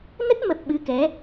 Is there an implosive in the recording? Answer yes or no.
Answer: yes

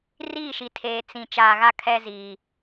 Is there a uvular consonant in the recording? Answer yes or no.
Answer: no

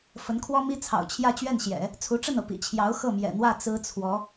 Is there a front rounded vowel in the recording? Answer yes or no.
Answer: no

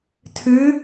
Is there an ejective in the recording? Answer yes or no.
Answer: no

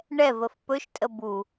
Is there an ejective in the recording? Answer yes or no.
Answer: yes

